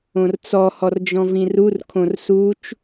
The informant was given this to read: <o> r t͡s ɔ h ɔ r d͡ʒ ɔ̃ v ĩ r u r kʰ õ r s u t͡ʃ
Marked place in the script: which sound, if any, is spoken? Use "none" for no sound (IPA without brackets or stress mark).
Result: õ